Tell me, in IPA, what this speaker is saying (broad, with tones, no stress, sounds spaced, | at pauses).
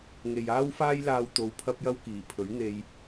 ŋ e˨ j aː˥ w f aː˥ j l aː˨ w t̪ o˧ w pʰ ɐ˥ p̚ j ɐ˥ w k iː˨˩ pʰ ɵ˨˥ ɥ n̪ e˧ j